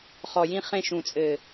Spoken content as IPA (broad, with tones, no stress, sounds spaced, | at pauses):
χ ɔ˨ j ĩ˧ χ ẽ˧ ʃ ũ˨ t͡sʼ ɘ˨